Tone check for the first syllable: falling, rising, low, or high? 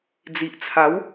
low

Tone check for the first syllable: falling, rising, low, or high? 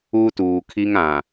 high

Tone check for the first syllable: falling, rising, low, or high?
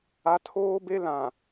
high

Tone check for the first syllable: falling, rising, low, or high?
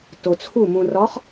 low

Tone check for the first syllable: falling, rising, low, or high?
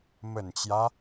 low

